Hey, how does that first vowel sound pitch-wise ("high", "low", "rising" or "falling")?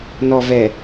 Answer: low